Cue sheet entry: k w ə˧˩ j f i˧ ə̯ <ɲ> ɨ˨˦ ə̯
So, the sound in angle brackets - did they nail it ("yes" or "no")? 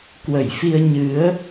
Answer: yes